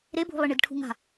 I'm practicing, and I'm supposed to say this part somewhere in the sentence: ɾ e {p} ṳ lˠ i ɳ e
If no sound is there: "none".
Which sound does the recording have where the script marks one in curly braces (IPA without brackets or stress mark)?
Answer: bʱ